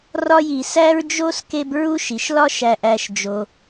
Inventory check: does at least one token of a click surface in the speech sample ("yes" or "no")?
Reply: no